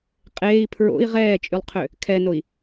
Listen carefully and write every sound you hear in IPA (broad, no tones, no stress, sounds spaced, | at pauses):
qʼ eː i̯ pʰ ɹ o̰ i̯ ʁ ɛː t͡ʃʼ y lˠ qʰ ø | kʰ ɛ n o i̯